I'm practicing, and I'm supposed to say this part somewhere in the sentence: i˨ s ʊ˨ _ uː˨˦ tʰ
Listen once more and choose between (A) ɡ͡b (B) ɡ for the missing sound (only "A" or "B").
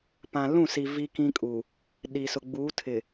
A